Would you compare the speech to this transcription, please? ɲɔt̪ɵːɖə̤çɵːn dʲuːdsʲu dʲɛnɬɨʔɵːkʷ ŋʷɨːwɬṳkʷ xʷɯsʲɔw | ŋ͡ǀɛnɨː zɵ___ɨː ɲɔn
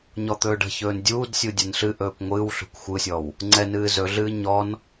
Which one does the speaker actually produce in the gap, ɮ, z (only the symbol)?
ɮ